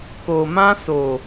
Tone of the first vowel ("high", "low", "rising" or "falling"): low